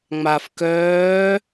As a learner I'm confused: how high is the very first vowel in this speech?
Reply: low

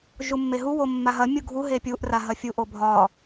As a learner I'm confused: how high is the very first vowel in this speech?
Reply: high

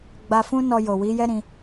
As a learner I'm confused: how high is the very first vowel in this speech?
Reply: low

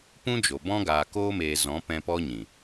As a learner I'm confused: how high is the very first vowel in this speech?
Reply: high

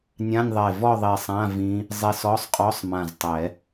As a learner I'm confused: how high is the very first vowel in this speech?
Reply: low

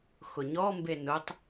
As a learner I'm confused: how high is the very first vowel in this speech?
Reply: high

